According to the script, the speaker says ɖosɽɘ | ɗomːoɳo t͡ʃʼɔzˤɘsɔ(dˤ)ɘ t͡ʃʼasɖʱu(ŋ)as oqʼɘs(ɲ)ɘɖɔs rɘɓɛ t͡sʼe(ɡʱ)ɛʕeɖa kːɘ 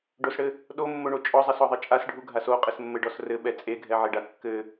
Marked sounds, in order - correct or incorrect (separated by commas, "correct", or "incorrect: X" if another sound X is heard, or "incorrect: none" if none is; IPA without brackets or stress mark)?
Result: incorrect: ðˤ, incorrect: ɡʱ, incorrect: mː, correct